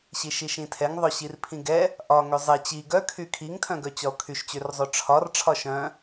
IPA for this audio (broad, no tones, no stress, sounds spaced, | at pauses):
ɕ i ʃ i ʃ ĩ tʰ ɛ ŋ ðˤ œ ɕ i r pʰ ĩ ɡ ɛ | ʔ ɒ ŋ ø zˤ e t͡ɕ i ɡ œ kʰ y kʰ i ŋ tʰ œ̃ ɡ œ t͡ɕ ɒ o̯ kʰ y ʃ t͡ɕ ø r zˤ ø ʈ͡ʂʰ ɒ r ʈ͡ʂʰ ɒ ʃ œ̃